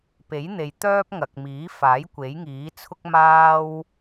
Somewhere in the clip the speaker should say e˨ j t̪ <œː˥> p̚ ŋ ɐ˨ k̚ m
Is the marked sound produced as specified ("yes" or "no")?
yes